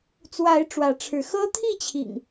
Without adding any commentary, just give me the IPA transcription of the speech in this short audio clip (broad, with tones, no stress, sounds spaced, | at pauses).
t͡s w a˨˦ ɪ̯ ʈ͡ʂ w ä˨˦ ʈ͡ʂʰ ɻ̩˨˦ x ɤ˦ t̪ʰ i˥˨ t͡ɕʰ ḭ˨˩ ŋ